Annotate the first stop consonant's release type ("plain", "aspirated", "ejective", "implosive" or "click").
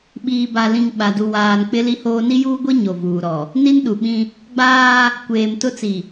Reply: implosive